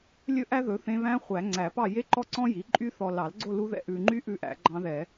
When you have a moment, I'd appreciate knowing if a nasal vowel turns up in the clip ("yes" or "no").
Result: yes